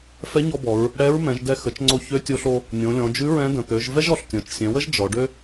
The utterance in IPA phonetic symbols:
f ɛ˧˥ ɲ ɔ˧ b ɔ˩˧ ɹ | ɽ ɛ˧˥ ɹ m ɛ̃˩˧ ʒ d ɛ˧ x ə˩˧ t͡ʃ ŋ͡ǀ o˧ ç ø˧˥ tʲ o˧ ɬ o˧ | nʲ õ˩˧ lʲ ɔ̃˩˧ d͡ʒ ʉ˧˥ ɹ ɛ̃˧˥ d ə̃˩ t̪ ø˩˧ ʒ v ɛ˥ ʒ ɔ˩ ɬ tʲ ɔ̃˩˧ t͡ʃ sʲ ɛ̃˩˧ w ə˥ ʒ d͡ʒ ɔ˩˧ ɖ ø˥

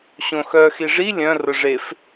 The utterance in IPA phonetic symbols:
ɕ õ x œ x i ʐ i lʲ œ̃ r ʊ ʐ e f

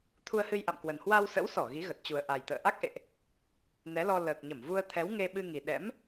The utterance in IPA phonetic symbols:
t̪ʰ u˧ ə̯ h ɨ˧ j ʔ a̰˧˨ m k w ə˨˩ n h w a˧ w s ə̰˧˥ w s ɔ˧˩ ɣ i˨˦ ɣ ə˨˩ t̚ t͡ɕ u˨˩ ə̯ ʔ a˨˩ j t̪ ə̰ː˧˨ ʔ a˦˥ k̚ ʔ ḛ˧˨ ʔ | n ɛ˨˦ l ɔ˧ l əː˨˩ k̚ ɲ ə˧˩ m v u˧ ə̯ t̪ʰ ɛ˨˦ w ŋ e˧ ɓ ɨ˧ ŋ i˨˩ ɗ ɛ̰˧˥ m

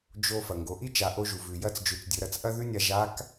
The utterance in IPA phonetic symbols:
d͡ʒ o˧ f ɐ˩ ŋ ɡ o˩˧ ʔ i˥ t͡ʃ a˩˧ ʔ o˧ ʒ u˩ v ʉ˩ j ɐ˧˥ t͡s d͡ʒ ʉ˩˧ t͡s dʲ ɵ˩˧ ɾ ɐ˩˧ t͡s ʔ ɐ˥ ð ʉ˥ nʲ a˧ ʒ a˧˥ k

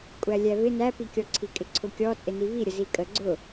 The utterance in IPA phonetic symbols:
kʷʼ æ lʲ æ v ɪ n æ p i kʲ ɔ ǀʰ i kʼ ɪ ǀʰ ʊ kʲ ɔ t͡sʼ ɪ n i v i ɾʲ ə z i kʼ ə ɡ͡ǀ ʊ

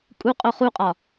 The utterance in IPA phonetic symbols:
kʼ u qʼ o χ u qʼ ɒ

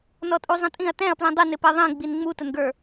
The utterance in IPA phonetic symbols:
n ɔ tʼ u zˤ ə̃ tʼ ĩ ɐ̯ t ɛ̃ ɐ̯ p l ĩ dˤ ɪ n ɪ p ɛ ðˤ ĩ ɡ͡b i n ŋ͡m u t ə n ɡ ə˞

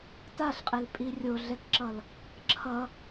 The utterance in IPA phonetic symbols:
t a ɬ qʼ e l pʼ i rʲ o ɮ ɛ k ǁ ʌ l | ǁʰ ʌ

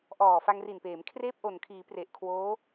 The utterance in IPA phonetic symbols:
ʔ ɔː˨˩ f a˧ ŋ r i˨˩ n p eː˩˦ m kʰ r eː˥˩ p̚ ʔ o˨˩ n kʰ iː˩˦ p r e˨˩ ʔ kʰ w oː˦˥

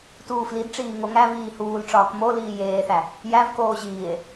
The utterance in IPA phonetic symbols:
t uː f l i d ʈ͡ʂ iː ŋ o ŋ æ v iː h uː l ʈ͡ʂ ɒː k m o l iː j eː θ æ | j æ v k oː ʑ iː e̯

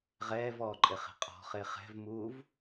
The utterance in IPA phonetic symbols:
ʁ ɛː v ɔː ǃʼ e χ e̤ qʼ ɔ̤ χ e χ ɛ̤ v m uː v

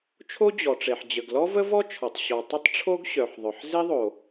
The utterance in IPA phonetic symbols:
t͡ʃʰ o˥ d͡ʑ ɔ˩ ʈ͡ʂ e˩ ħ d͡ʑ ə˩ ɡ l ɔ˥ v ə˥ v ɔ˥ t͡ʃʰ ɔ˩ tˤ ɕ ɔ˩ tˤ ə˥ tˤ ʈ͡ʂʰ o˥ ɡ ɕ œ˩ ħ ðˤ œ˩ ħ z e˥ ðˤ o˩

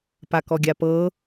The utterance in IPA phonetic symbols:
p a k ɔ ɡʲ a p ɤ

